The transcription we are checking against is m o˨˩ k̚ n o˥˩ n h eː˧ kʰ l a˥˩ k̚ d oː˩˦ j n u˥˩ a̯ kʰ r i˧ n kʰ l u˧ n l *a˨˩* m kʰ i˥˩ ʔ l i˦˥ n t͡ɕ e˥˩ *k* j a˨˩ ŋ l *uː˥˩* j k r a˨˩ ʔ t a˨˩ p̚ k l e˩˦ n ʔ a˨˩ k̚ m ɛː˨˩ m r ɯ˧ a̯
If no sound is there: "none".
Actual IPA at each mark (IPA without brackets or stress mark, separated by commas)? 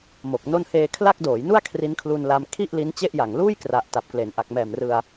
a˧, ʔ, uː˥˩